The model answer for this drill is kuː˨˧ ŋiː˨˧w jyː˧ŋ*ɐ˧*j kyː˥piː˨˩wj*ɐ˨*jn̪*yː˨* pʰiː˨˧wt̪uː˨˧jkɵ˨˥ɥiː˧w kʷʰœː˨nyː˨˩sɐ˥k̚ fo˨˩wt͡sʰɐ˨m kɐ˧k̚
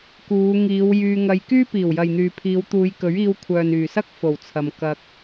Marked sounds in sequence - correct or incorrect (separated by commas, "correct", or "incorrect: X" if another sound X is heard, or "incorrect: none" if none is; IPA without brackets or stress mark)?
correct, correct, correct